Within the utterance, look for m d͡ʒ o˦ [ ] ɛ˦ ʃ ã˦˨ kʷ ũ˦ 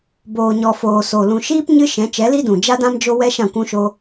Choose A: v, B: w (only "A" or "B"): B